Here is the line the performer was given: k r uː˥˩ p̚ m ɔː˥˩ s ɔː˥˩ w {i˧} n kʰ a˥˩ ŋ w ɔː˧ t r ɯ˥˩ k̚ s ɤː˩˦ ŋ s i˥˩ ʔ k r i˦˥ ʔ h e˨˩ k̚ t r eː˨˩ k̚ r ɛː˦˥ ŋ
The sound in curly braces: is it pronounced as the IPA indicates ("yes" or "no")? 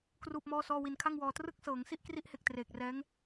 yes